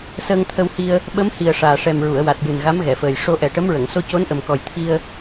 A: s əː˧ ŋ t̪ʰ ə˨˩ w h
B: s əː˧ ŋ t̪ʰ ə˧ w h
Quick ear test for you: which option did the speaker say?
B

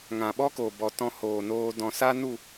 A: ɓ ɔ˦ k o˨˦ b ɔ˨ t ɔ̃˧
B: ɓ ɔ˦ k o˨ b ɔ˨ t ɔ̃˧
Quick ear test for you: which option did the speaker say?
B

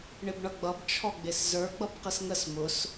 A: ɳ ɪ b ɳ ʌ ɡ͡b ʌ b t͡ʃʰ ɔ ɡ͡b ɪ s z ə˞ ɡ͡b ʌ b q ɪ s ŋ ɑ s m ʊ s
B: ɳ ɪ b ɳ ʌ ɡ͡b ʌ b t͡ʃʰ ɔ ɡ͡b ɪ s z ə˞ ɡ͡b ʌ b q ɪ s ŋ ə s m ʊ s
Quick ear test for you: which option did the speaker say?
B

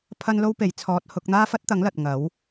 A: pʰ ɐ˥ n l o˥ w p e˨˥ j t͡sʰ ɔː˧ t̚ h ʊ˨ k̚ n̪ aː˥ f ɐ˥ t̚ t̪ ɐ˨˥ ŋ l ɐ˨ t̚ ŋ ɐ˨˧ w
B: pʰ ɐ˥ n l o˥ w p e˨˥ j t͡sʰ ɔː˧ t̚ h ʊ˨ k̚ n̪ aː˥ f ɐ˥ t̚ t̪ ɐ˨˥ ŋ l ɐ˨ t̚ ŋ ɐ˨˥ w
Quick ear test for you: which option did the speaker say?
B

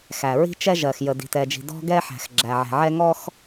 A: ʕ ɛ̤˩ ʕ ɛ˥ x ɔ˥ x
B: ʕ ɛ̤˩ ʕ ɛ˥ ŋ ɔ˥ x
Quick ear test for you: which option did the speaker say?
B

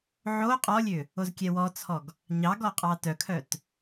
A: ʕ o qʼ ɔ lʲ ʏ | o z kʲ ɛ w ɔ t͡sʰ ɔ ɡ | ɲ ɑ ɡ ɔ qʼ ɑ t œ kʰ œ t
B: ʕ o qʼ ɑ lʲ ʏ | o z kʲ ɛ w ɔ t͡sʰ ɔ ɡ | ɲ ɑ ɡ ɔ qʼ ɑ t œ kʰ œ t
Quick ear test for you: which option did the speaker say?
A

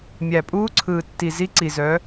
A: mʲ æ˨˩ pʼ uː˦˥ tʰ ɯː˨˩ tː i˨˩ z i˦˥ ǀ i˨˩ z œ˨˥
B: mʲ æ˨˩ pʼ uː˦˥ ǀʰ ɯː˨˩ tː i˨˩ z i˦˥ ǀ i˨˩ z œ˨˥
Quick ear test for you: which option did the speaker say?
B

